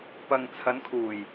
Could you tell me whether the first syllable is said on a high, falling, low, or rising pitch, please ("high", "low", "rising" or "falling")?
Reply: low